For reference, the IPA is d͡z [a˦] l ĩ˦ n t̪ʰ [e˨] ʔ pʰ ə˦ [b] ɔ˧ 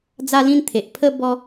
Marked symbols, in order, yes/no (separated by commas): yes, yes, yes